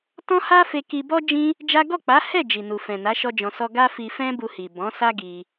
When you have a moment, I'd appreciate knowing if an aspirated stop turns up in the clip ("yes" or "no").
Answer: no